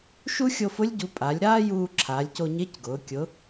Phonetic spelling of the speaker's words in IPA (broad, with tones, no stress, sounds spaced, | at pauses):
ʃ u˥ xʲ o˧ f ʊ˧˥ lʲ ɟ u˩˧ pʼ a˩˧ lʲ ɾ aː˥ j uː˧ ǁʰ aː˩˧ lʲ c o˧ ɲ e˧˥ c ɡ ʊː˩˧ kʲ ʊ˩˧